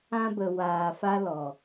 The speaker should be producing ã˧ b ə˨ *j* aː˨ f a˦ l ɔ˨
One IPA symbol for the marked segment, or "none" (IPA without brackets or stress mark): w